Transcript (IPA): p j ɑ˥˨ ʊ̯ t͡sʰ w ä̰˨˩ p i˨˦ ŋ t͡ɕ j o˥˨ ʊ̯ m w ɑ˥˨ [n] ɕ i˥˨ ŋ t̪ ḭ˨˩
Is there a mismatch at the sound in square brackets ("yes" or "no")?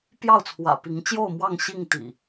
yes